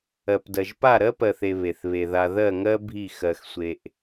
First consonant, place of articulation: labial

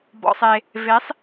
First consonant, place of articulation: labial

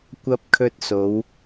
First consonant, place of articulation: velar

